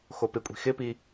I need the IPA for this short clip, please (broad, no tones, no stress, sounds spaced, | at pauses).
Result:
x o p ɪ kʷʼ i̤ x ɪ p i